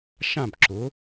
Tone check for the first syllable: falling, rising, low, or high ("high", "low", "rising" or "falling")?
falling